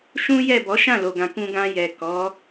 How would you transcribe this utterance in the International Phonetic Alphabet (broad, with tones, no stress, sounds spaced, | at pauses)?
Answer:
ʃ ũ˦ j ɛ˦˨ b ɔ˨˦ ʃ ã˦˨ l o˨ ɡ ã˨ k ũ˧ ɡ ã˧ j ɛ˨ k ɔ˨˦